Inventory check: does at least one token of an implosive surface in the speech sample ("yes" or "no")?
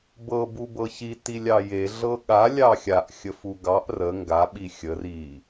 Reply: yes